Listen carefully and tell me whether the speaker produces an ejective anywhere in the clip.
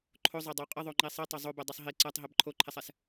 yes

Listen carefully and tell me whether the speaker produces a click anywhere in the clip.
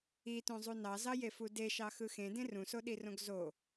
no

